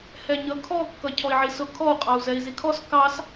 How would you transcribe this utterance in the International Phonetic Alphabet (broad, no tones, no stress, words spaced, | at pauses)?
hɛɲʌkʰɔ kːʌcʰɔi̯ʕisʊ kʰɔu̯ qʼɑu̯zɛi̯zikʰɔs kɑs